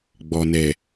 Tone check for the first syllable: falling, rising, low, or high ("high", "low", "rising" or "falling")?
low